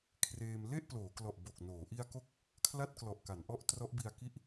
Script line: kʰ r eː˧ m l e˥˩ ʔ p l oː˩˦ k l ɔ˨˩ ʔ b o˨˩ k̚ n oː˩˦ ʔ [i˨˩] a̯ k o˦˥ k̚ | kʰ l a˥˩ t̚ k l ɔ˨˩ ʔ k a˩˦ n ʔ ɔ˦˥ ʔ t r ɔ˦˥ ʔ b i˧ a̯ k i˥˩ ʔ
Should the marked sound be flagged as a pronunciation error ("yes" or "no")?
yes